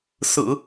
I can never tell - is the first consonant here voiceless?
yes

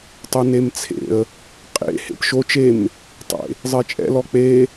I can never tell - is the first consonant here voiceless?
yes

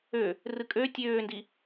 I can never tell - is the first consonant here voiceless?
no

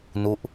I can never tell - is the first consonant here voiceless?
no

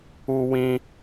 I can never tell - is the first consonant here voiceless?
no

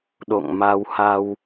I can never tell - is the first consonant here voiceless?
no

